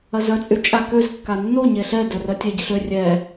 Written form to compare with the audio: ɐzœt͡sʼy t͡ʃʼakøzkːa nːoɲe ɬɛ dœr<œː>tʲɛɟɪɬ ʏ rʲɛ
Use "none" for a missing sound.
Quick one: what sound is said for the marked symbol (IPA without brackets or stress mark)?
œ